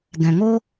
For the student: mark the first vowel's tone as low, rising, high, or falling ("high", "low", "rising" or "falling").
low